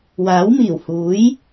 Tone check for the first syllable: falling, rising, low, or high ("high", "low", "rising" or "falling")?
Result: rising